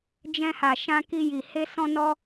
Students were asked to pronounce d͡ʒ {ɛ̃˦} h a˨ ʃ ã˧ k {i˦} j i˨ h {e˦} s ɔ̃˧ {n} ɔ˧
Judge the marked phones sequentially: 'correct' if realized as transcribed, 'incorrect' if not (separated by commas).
incorrect, incorrect, incorrect, correct